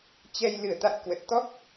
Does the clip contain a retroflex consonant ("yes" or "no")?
no